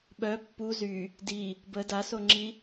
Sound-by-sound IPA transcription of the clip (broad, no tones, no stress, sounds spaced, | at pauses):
ɓ œ pː u z y | d i | b ə d a s o ŋ͡ǁ i